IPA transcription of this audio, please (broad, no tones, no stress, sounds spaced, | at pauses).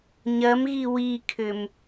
ɲ ɐ m ɣ i w i kʰ ʏ m